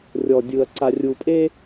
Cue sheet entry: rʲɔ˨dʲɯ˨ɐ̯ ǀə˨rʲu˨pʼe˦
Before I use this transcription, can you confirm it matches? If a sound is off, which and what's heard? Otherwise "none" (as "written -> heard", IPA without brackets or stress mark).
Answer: ə˨ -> a˨